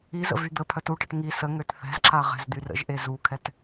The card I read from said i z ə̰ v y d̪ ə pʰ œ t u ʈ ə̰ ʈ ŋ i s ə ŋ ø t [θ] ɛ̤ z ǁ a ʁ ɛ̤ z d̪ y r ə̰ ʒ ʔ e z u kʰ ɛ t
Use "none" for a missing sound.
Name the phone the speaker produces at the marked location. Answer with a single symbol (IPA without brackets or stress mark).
θ